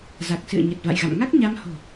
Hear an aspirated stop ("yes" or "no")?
no